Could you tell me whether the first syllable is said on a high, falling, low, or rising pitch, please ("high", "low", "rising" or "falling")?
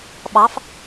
rising